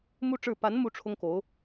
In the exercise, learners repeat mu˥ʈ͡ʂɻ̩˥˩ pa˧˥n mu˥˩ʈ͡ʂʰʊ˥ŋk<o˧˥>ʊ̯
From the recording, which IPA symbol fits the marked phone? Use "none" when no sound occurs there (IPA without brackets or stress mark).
o˧˥